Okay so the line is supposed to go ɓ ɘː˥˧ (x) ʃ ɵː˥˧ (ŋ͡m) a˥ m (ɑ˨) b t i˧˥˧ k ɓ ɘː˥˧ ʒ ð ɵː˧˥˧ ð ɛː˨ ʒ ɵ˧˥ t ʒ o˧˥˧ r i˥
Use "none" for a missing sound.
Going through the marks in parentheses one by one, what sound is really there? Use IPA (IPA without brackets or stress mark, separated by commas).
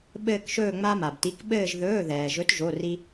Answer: k, ŋ͡m, a˨